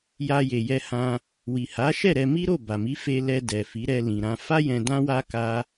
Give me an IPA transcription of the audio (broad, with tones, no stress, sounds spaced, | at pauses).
j a˧ j e˨ j ɛ˧ h ã˧ | w i˨ h a˨˦ ʃ ɛ˦˨ ɾ ɛ˧ m i˦ ɾ o˦˨ b a˨ m i˨˦ f e˧ l ɛ˧ d ɛ˨ f i˨˦ ɾ ɛ˧ l ĩ˨ ɾ ã˧ f a˦ j ɛ̃˧ d ã˦ w a˦ k a˦